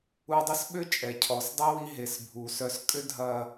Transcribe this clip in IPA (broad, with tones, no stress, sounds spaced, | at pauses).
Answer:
u˧ dˤ ə˥ s ɓ ʏ˥ t͡ʃʼ ɛ˩ cʰ ɔ˩ s dˤ ɛ˥ w i˧ ɦ e˩ s bʱ u˩ s œ˧ s kʼ ʏ˥ dʱ ɐ˧